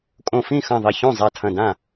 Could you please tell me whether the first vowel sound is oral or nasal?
nasal